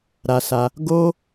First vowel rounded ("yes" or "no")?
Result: no